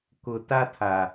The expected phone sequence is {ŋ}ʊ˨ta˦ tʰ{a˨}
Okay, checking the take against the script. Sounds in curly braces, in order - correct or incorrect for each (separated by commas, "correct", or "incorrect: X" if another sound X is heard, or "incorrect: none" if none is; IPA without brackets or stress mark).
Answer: incorrect: k, correct